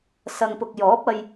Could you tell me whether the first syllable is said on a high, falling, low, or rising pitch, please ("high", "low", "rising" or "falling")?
low